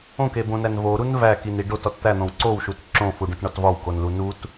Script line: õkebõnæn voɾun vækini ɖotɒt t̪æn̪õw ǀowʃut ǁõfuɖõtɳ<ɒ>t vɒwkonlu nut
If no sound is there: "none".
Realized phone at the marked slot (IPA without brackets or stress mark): ɒ